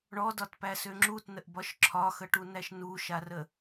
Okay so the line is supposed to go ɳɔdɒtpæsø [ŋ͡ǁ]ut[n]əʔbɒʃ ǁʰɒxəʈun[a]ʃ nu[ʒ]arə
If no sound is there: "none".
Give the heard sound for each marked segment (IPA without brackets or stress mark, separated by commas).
ŋ͡ǁ, n, æ, ʃ